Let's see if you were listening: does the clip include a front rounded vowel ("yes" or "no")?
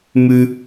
no